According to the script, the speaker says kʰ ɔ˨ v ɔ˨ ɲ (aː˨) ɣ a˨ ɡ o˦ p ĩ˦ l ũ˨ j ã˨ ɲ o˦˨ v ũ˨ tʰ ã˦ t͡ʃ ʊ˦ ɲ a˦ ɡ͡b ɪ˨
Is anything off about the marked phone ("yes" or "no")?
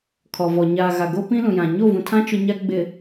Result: no